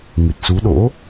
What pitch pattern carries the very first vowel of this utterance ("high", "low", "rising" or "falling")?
low